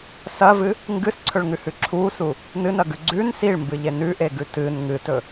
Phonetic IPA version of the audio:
s ɐ v ɨ | ŋ ɡ ɨ s ǀʰ ɵ ɭ ŋ ʉ h ʉ ǁʰ u s u | n ɨ n ɐ ɡ ʉ ɡ͡ǀ ʉ n s i ɭ m b ɨ ʎ e n ʉ ʔ e ɡ ʉ t ɨ n ŋ ɨ t ɵ

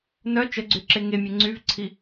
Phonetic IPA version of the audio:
n œ t͡ʃ ə ɡ͡ǀ y ǁ e ŋ e mʲ e ŋ͡ǀ y v ǀʰ i

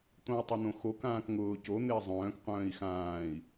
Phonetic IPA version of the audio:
t̪ õ y̯ tˤ ɪ n̪ õ x o k ãː k ŋ ʊː c o n̪ ɪː zˤ œ̃ː k qʷ œ̃ː i̯ x ãː i̯

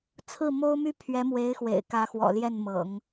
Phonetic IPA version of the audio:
t͡sʰ ɹ̩˥˩ m o˥ ʊ̯ m y˥ pʰ ɥ ɛ˧˥ m w e˧˥ ɪ̯ x w ḛ˨˩ ɪ̯ k ä˧˥ x w ɔ̰˨˩ l j ɛ˥˩ n m ɤ̰˨˩˦ ŋ

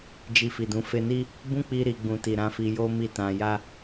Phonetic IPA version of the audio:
d͡ʒ i˧ f i˨ d ũ˧ f e˧ n i˦ | b ũ˦ k͡p i˧ ɾ i˨ ɡ͡b ũ˨ t i˨ ɾ ã˨˦ f i˧ j o˦ m i˦˨ t ã˧ j a˦

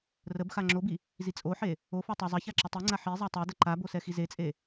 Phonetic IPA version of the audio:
r ə b x a ŋ͡ǁ o b i | z i t͡sʼ o ħ e | o f o tˤ ɛ zˤ ɐ ç a ǁ ə tˤ i ŋ͡ǀ a ħ i zˤ a tˤ ɵ d ə ǃ a b o s ɛ x i z e t͡sʼ e

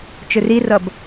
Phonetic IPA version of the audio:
t͡ʃ ɵ r i r ʌ b

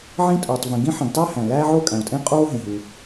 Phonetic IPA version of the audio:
ʕ ĩ˥ tʼ oː˩ tˤ v ẽ˩ ɡ ĩ˥ ħ ĩ˩ ɡ tˤ æ˥ h æ̃˩ l æː˥ ʕ o˥ kʼ æ̃˩ o̯ tʼ ẽ˥ qʼ oː˥ ɦ ẽ˩ ɦ u˩

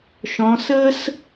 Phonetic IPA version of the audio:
ʃ ɔ̃˩˧ s ə˥ s

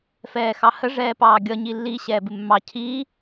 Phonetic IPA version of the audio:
f ɛː x ɑ h ə ʐ ɛː p ɑː ɡʲ ʌ ɲ i lː i ɕ ɛː b ɪ mː ɑ cʰ i

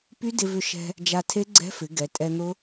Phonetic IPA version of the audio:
p y˦˥ d ɪ˧ v ʏ˧ ʃ ɛ̤˧ | d͡ʒ a˧ tʰ e˦˥ ɡ͡ǀ ɛ̤˦˥ f ɪ˩˧ ɡ ɛ˩˧ tʼ ɛ˧ n̪ ʊ˦˥

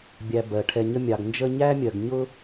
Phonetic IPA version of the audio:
bʲ æ˨ b ɜ˩ ʈʰ ɛ˨ ɲ ə˦ mʲ ɑ˨ ɡ n d͡ʒ ə˦ ɲ æ˥ mʲ ɜ˨ ɡ ɲ ʊ˦

